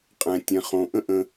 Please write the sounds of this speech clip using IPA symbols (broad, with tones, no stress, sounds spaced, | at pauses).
qʼ ɛ̃˩ tʲ ɛ̃˩ χ õ˩ ʔ ə̃˥ ʔ ə̃˧